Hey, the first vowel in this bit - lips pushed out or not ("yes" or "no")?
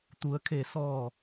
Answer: yes